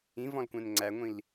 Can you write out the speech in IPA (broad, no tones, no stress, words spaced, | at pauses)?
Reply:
ĩvɔ̃lkʷɛ̃n ŋ͡ǀæŋʷĩl